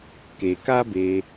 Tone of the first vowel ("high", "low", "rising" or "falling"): low